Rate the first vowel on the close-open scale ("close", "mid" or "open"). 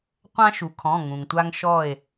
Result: open